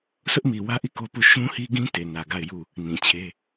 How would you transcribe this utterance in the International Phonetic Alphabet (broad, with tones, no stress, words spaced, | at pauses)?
sʊ˦ʔmi˨wä˦ʔi˦˨ ko˦pu˦˨ ʃũ˦hi˦ɡĩ˦ te˨ nä˨ɡa˦˨ɪ̯ ju˦˨ | nĩ˨ t͡ɕʰe˦